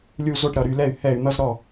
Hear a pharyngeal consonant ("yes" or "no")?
no